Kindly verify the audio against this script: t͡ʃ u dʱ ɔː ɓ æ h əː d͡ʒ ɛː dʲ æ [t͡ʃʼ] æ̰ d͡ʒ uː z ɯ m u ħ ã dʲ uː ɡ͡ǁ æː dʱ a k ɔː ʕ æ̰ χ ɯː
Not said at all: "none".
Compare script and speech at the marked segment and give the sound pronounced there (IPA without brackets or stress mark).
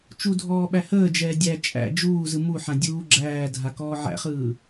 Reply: t͡ʃʼ